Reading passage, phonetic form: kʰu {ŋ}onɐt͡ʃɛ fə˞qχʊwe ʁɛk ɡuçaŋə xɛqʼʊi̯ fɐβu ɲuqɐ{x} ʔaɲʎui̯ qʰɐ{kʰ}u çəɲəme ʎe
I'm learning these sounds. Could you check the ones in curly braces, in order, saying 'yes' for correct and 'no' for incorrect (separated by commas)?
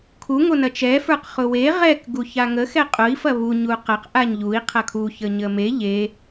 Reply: yes, no, yes